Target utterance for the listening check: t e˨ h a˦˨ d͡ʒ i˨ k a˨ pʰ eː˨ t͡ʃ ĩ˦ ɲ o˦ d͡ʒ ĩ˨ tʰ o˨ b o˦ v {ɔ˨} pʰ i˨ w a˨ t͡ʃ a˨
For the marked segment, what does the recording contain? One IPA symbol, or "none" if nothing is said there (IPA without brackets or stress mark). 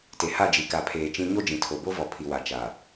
ɔ˨